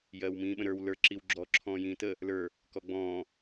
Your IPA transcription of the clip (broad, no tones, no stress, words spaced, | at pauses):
jɜːwmĩːɓə̃ɾə˞w lə˞ ǁiwɡ͡ǁɔ ǁʰɔ̃ːjĩːtə | lə˞ | kɔɡ͡bɔ̃ː